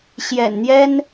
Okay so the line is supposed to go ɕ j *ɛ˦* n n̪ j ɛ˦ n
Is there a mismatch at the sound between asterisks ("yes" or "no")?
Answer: yes